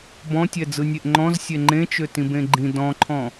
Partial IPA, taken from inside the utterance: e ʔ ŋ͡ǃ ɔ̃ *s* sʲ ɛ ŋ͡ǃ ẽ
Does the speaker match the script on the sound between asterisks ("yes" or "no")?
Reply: no